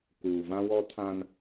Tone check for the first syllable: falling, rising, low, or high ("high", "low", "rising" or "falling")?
low